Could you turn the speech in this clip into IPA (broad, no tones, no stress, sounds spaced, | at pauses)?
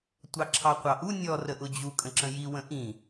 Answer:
tʷ ɑ ǁʰ ɑ qʷ ɑ ʔ u nʲ ɔ r ə ʔ ʊ d͡ʑ u kʼ ə̃ ǁ ə̃ j i w ə̃ ʔ ĩ